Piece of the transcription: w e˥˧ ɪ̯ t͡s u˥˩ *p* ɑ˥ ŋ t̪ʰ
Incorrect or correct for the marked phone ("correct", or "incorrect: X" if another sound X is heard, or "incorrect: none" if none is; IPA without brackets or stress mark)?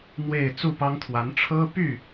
correct